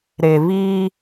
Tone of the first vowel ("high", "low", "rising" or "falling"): low